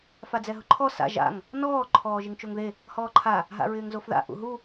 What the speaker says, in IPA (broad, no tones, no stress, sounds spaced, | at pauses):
f a d͡z ɛ ɦ ʊ ǃʰ ɔ s a̰ ʒ a̰ ŋ | n ɔː ǃʰ ɔː ʒ ɪ ŋ t͡ʃ o ŋ ð e | h ɔː ǃʰ a | ɦ a̰ ɹ ɪː ŋ z o f ð a̰ ʔ ṵ ɦ u